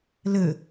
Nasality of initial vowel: oral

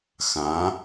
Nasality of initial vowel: nasal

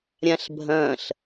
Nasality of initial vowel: nasal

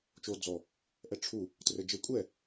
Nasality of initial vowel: oral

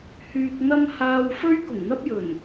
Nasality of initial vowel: oral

